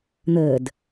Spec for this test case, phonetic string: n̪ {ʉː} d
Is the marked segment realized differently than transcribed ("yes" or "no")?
yes